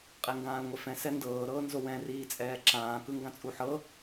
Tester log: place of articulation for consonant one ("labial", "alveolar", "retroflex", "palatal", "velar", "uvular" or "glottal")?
uvular